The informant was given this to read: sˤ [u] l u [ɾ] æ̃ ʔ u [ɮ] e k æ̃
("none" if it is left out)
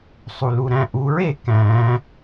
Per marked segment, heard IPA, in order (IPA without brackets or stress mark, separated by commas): u, ɾ, ɹ